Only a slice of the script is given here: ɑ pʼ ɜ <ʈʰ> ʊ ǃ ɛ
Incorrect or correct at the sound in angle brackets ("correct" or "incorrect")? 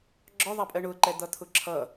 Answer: incorrect